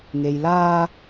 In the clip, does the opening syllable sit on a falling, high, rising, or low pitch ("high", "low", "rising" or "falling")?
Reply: low